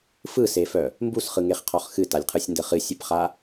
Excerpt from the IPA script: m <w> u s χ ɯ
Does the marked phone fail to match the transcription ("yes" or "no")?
yes